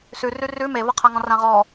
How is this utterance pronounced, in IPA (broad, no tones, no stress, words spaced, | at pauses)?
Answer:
sʉrʉ rʉ mevɤqʰa ŋɔ̃rãʁɔ